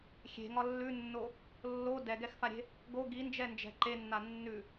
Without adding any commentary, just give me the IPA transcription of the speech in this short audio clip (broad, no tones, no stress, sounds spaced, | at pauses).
xʲ e̤ ŋ ɒ lː ʉ nː o | lː o d ɛ ɡ ɛ x f a ɾʲ e̤ | ɡ o ɡ i n d͡ʒ ɛ n d͡ʒ ɛ̤ ǃ e nː a nː ʉ